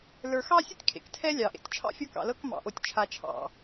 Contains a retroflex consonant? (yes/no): no